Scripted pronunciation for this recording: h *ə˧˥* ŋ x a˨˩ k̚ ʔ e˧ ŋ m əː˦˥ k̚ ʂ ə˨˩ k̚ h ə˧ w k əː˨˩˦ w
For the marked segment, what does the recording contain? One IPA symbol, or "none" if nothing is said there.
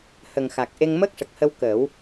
ə˨˩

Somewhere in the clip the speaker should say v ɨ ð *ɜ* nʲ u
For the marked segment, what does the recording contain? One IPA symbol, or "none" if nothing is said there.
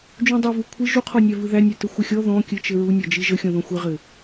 æ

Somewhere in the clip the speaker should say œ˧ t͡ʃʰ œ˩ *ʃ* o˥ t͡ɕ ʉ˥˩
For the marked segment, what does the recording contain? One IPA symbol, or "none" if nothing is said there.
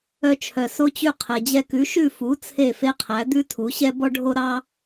s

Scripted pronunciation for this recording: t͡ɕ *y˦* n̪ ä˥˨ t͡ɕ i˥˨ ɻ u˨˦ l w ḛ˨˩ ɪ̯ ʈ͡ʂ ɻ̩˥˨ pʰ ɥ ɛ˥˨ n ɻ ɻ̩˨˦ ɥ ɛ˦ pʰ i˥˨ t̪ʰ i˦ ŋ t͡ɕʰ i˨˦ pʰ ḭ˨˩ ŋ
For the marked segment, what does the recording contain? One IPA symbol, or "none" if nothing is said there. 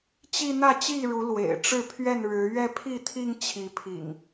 i˦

